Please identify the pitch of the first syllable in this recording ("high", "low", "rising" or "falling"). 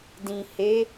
low